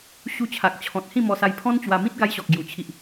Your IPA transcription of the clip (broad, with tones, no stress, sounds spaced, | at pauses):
ɕ u˧ t͡ɕʰ a˨ k̚ t͡ɕʰ ɔ̃˨ t̚ h ĩ˥˧ m ɔ˧ s a˧ j pʰ ɔ̃˦ n t͡ɕ w a˧ m ĩ˦ t̚ ɡ a˧ j ɕ ɔ˨ k̚ ɡ j u˧ t͡ɕʰ i˦ ʔ